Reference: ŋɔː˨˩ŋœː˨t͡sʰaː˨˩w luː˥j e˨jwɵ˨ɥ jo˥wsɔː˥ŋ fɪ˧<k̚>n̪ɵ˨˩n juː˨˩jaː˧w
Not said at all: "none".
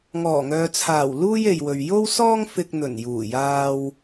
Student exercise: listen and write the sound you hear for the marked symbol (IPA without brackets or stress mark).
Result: k̚